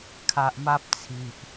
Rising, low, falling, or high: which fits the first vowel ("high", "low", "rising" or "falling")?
high